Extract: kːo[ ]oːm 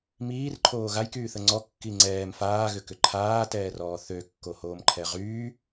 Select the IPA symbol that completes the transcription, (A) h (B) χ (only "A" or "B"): A